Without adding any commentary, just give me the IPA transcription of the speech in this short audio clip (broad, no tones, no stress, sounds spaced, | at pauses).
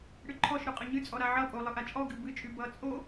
ɽ ɨ ǃʰ ɔ ʃ ɾ ʊ qʼ ə ɲ ɨ t͡sʼ ɔ ɾ a ʕ ʌ pʼ o lˠ ɨ ʔ a t͡ʃʼ ɔ ɡ ɨ b ɨ t͡ʃʼ y b ʌ t͡sʼ o